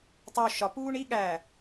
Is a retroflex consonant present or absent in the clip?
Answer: present